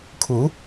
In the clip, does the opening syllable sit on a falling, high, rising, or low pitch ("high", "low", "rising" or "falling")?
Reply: rising